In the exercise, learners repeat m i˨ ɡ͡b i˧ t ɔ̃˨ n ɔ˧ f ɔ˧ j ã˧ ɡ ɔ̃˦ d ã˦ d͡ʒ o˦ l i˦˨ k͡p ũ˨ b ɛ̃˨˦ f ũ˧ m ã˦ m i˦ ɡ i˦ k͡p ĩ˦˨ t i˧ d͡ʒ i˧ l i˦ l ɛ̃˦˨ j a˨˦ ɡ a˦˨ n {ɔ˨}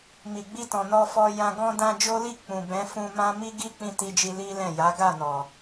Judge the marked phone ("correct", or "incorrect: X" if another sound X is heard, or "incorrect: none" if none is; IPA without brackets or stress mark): correct